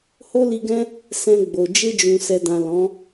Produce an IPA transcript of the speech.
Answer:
h o˦ l i˧ ɡ ɛ̃˦ | s ɛ̃˧ ɡ͡b o˨ d͡ʒ e˧ d͡ʒ ũ˨ s ɛ˨ d ã˨ l ɔ̃˨˦

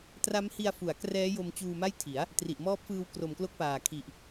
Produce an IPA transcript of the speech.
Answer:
t r a˦˥ m h i˧ a̯ f u˩˦ a̯ k r ɛː˦˥ j o˧ m t͡ɕ uː˧ m a˥˩ j tʰ i˩˦ a̯ | t r i˨˩ ʔ m ɔː˦˥ p̚ f ɯː˧ w k r o˨˩ m k l o˦˥ k̚ p aː˨˩ kʰ i˨˩ ʔ

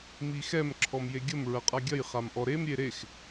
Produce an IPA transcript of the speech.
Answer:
m i x ɛ m ǁʰ ɔ m j e ɡʲ ə m ɹ ɐ qʼ a ɡʲ ɐ j χ a m ʔ ɔ ɾ e m ɾʲ e ɾ e x

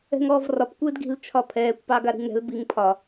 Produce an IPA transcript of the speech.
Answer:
ɛ̤ ŋ ɔː v r ɒ p kʷ ɪː d ɡ i̤ l t͡ʃʰ ɒ pʰ ɛː kʷ p ɑ ɡ a ɾ i̤ ŋ ɾ ɛ̤ l b i ŋ pʰ ɒ

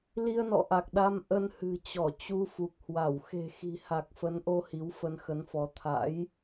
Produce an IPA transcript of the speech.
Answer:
l i˧ ə̯ n ɔ̰˧˨ ʔ a˨˩ k̚ ɗ a˧ m ʔ ə˧ n h ɨ̤˨˩ t͡ɕ ɔ˧˩ t͡ɕ u˧ f u˨˩ k̚ h w a˧˩ w x e̤˨˩ x i̤˨˩ h a˨˩ k̚ f ə˨˦ n ʔ o˧ h i˨˦ w f ə˧ n x ə˨˦ n f ɔ˨˦ t̪ʰ a̰˧˥ j

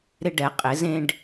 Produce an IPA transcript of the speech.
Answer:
ɾ ɪ˧ ɖ ɛ˩˧ qʼ ɪ˩˧ z ẽ˧ ɖ

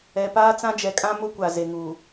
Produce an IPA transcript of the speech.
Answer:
ɛ˨ p aː˦ t͡s ã˦ d͡ʒ ɛ˨ kʼ ã˦ m ʊ˦ kʷ a˨ z e˨ ŋ uː˨

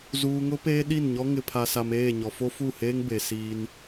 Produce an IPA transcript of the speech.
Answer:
z uː˨ ŋ ʊ˦ p eː˦ ɗ i˦˨ n ɲ ɔ˦ ŋ ɪ˨ pʰ a˨ s a˨ m eː˦˨ ɲ ɔ˨ f o˦ f u˦˨ h eː˦ ŋ b e˨ s iː˦ n

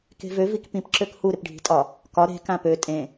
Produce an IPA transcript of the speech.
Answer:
k e̤ v ø v i k p ĩ p ǁ ø k h u ɾ ɪ p ɖʱ i̤ tʼ ɒ | k ɒ ɾ e̤ k ã p ø tʼ ẽ

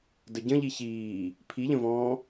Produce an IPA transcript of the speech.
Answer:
d ə ɟ ə̃ ʎ i ç iː | pʰ i ʎ ə̃ v ɔ̃ː

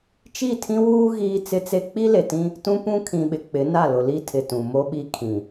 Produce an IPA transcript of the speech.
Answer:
t͡ʃ i˦˨ tʰ ĩ˦ w uː˦ ɣ iː˦ t͡s ɪ˦ t͡s e˦ k͡p i˦ l e˨ t ĩ˦ | t ũ˦ p ũ˦ kʰ ĩ˨ ɓ ɪ˨ k͡p ɪ˨˦ n a˦˨ l ʊ˨ l i˦ tʰ ɪ˨ t ũ˨ m o˦ ɓ i˦ kʰ ĩ˨

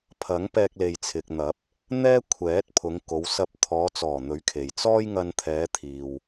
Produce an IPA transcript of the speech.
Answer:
pʰ ɐ˨˥ ŋ p ɛː˧ k̚ l e˨ j t͡sʰ ɪ˨ k̚ n̪ ɐ˨˥ p̚ | n̪ ɛː˥ kʷʰ ɛː˨˥ t̚ pʰ ʊ˨˧ ŋ k o˨˧ w s ɐ˧ p̚ t̪ʰ ɔː˨˧ t͡s ɔː˨˩ n̪ ɵ˨˥ ɥ kʰ e˨ j t͡s ɔː˥ j ŋ ɐ˧ n t̪ʰ ɛː˨˧ t̪ʰ iː˨ w

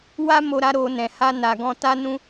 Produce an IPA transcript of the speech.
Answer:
w a˦ m o˧ ɾ a˧ ɾ o˧ n ɛ̃˨ h a˧ n a˨ ɡ ɔ̃˧ t a˦ n ũ˦

